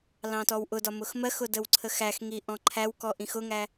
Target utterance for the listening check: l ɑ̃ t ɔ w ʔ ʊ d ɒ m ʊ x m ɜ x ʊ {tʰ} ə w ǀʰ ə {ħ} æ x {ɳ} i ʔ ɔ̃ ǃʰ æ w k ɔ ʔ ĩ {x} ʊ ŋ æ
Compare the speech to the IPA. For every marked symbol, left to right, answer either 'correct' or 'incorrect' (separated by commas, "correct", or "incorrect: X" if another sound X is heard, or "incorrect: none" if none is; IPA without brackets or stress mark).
incorrect: d, incorrect: x, incorrect: ŋ, correct